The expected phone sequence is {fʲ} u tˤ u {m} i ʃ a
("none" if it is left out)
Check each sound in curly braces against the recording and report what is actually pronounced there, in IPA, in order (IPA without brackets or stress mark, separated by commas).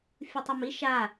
fʲ, m